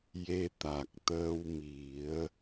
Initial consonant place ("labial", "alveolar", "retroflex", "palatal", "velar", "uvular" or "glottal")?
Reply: palatal